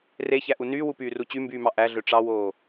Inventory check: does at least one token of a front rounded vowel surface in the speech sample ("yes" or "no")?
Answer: yes